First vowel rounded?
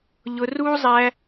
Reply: yes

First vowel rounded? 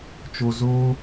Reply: yes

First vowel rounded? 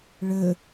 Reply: no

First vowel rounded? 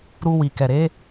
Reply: yes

